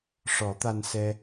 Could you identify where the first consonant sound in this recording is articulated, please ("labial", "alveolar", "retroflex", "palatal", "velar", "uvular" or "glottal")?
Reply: retroflex